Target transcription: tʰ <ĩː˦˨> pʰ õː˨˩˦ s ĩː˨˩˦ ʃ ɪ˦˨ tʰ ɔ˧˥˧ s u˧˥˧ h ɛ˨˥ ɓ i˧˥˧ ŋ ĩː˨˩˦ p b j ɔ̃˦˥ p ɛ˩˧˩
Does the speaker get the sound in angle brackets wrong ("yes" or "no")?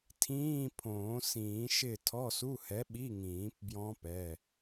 yes